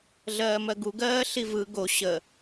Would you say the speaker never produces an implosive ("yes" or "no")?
yes